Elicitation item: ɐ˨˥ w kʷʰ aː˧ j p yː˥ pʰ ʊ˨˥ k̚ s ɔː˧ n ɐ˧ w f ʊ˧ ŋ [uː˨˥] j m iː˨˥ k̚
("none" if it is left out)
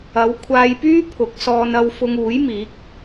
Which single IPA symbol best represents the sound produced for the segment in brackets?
uː˨˥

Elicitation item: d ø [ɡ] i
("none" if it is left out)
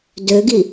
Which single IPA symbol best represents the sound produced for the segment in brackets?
ɡ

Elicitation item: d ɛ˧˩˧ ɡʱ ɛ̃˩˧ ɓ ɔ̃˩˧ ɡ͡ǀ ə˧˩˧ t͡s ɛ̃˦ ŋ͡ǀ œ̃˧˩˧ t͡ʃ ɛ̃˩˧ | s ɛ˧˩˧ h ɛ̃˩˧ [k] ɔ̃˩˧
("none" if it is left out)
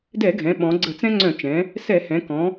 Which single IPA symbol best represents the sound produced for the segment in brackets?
k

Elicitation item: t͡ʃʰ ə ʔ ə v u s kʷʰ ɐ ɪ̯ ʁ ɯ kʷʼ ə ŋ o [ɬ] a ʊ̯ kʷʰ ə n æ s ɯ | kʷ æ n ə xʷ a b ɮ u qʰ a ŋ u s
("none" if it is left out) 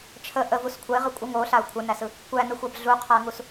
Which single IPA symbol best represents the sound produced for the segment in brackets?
ɬ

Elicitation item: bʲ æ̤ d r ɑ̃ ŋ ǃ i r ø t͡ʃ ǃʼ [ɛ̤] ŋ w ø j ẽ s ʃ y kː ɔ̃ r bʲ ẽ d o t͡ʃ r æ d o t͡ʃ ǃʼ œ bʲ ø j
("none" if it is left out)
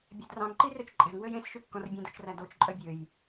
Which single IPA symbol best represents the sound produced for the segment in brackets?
ɛ̤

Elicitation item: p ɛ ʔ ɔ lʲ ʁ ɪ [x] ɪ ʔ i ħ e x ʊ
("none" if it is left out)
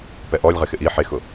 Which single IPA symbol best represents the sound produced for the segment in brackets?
x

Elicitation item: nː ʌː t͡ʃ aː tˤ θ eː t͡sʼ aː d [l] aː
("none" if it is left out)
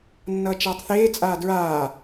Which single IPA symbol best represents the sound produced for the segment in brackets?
ɹ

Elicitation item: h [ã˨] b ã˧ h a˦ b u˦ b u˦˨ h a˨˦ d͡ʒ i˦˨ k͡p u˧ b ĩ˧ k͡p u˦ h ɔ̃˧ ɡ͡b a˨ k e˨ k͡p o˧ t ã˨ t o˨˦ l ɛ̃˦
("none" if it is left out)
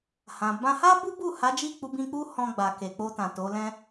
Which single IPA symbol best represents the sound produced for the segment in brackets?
ã˨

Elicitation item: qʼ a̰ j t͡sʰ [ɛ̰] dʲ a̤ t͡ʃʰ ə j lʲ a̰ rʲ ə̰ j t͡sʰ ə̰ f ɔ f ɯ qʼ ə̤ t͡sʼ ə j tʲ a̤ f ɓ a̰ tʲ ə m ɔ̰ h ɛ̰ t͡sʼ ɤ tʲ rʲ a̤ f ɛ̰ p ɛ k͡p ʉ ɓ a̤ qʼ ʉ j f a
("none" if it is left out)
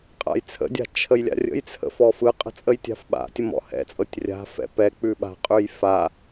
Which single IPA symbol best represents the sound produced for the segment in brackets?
ə̰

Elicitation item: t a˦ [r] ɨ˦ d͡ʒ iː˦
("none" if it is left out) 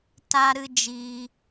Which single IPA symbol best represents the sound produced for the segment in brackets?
ɾ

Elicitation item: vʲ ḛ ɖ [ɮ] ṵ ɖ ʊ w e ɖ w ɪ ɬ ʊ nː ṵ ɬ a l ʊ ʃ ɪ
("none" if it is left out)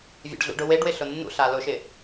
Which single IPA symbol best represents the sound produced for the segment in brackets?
ɮ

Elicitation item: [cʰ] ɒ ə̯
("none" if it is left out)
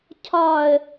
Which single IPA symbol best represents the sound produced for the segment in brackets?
cʰ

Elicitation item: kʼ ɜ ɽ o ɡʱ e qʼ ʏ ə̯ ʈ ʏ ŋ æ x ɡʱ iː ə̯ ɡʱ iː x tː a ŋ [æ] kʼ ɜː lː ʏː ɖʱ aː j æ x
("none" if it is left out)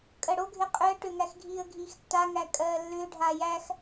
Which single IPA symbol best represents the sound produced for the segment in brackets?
æ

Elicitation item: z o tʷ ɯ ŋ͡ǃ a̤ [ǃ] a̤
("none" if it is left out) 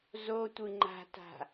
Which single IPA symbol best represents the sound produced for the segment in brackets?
t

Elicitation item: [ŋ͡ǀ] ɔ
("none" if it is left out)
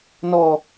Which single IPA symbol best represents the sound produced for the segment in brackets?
n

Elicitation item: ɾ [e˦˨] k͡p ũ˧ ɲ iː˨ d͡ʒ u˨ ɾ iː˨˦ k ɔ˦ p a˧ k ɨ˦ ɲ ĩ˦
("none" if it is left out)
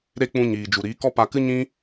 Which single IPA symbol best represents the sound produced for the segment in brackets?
e˦˨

